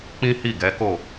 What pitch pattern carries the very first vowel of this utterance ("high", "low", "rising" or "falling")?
high